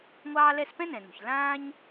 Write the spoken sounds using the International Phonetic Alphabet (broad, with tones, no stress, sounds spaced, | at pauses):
ŋʷ ɑː˥ l ɛ˥ s p ɛ̃˥ n ɛ̃˩ n o̤˩ ç l ãː˥ ɲ